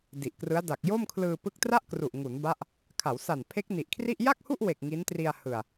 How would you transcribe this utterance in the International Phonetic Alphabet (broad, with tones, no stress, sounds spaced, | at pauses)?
d i˨˩ ʔ k r ɯ˦˥ a̯ d a˨˩ k̚ j o˥˩ m kʰ l ɯː˧ p ɯ˦˥ k̚ t r a˥˩ ʔ k r u˨˩ ʔ ŋ u˩˦ n b a˦˥ ʔ | kʰ a˩˦ w s a˨˩ n pʰ e˦˥ k̚ n i˨˩ ʔ kʰ r i˥˩ ʔ j a˥˩ k̚ h u˥˩ ʔ w e˨˩ k̚ ŋ i˦˥ n t r i˧ a̯ h ɯ˨˩ a̯